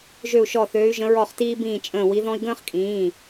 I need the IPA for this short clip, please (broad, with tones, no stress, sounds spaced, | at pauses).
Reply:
ʒ ø˦˨ u̯ ʃ ɔ˦˨ θ øː˧˥ y̯ ʒ ə̃˧˥ ɹ ɔ˦˨ χ t iː˥ b ĩː˦˨ t͡ʃʼ ə̃ː˦˨ w i˧˥ ð ɔ̃˥ i̯ ɡ ə̃ː˥ χ kʼ ĩː˩˧˩